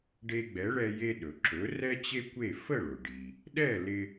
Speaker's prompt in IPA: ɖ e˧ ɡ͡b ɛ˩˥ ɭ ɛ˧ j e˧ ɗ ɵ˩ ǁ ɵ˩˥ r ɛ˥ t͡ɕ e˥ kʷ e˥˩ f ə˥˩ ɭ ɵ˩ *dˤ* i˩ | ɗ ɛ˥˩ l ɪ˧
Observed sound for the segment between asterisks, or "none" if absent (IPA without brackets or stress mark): ɖ